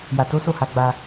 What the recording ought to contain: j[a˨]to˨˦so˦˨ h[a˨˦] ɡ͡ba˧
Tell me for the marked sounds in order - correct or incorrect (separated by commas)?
correct, correct